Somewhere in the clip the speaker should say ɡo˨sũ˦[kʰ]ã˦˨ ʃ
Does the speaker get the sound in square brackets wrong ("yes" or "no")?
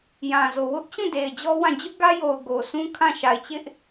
no